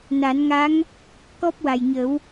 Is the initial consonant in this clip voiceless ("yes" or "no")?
no